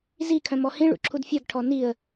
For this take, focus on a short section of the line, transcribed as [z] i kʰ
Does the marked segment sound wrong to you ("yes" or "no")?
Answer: no